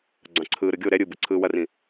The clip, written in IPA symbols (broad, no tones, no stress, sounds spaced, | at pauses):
ɡ͡ǀ ɑ̃ ǀʰ ɯː ɾ ɯ ɡʲ o ɾ ɛ ɾʲ ɯ b ɯ ǀʰ ɯː w ɐ r ĩ